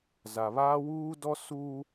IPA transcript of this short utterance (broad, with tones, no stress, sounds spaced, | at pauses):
z a˨ β aː˦ w uː˦ d ɔ˦ s uː˦